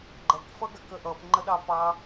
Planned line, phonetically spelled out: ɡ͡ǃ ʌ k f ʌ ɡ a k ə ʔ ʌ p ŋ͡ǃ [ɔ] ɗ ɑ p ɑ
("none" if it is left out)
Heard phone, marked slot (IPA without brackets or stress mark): ə